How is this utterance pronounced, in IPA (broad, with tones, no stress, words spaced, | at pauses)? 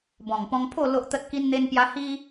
bɔ̃˨˩ŋpɔ̃˧ŋpʰo˥˧ lo˦ʔt̪ə˦t̚ ki˦nn̪e˦npja˦ hi˦